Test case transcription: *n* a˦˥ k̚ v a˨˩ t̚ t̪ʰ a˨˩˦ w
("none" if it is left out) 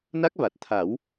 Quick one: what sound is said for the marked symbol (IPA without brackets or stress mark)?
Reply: n